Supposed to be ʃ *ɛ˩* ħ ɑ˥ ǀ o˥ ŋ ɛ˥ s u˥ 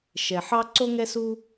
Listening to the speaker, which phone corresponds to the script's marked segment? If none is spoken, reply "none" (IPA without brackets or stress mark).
ɛ˩